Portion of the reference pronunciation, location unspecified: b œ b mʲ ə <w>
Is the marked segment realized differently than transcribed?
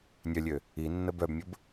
yes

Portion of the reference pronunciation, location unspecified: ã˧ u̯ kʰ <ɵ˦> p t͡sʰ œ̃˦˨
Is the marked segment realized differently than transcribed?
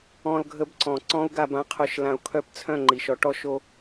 yes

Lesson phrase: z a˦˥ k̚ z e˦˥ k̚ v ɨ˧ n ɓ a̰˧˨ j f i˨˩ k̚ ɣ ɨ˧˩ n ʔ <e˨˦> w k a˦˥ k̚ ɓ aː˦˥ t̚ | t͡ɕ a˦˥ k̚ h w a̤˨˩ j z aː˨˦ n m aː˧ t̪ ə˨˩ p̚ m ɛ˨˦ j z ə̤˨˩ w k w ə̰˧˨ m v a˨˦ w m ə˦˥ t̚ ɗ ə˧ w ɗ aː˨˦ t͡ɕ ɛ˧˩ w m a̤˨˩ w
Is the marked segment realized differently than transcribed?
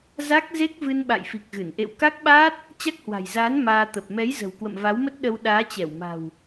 yes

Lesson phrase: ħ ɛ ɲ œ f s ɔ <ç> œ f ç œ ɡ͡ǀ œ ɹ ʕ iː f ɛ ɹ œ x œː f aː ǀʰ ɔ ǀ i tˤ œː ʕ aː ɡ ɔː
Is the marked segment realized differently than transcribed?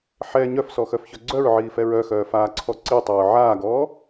yes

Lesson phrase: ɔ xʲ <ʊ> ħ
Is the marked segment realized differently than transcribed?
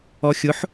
no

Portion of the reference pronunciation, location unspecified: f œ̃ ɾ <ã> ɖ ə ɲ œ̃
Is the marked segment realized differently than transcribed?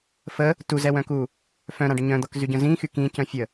no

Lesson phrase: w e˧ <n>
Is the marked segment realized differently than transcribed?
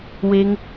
yes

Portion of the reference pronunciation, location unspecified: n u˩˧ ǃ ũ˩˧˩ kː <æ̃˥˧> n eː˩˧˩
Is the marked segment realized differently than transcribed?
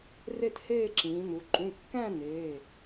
no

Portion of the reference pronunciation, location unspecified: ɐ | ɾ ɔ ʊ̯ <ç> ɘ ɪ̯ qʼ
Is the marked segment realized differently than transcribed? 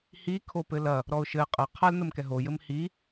yes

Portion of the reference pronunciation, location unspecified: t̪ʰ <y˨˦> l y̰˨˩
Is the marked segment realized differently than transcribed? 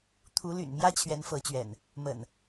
yes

